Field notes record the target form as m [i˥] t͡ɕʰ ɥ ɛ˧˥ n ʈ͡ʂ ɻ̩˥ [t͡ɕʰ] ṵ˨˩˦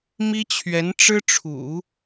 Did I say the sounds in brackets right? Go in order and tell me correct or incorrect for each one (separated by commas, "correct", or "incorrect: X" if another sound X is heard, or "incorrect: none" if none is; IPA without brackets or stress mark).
correct, incorrect: ʈ͡ʂʰ